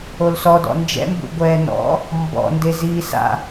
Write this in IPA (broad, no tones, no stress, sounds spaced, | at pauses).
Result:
o l s ɔ d ɔ̰ n d͡ʒ ɛ̰ m b ṵ ɡʷ ɛː n ɔ̰ | m b ɔ̰ n d e z iː s a̰